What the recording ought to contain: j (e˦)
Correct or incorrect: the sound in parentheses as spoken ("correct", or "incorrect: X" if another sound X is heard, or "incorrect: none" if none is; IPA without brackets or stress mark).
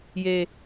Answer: correct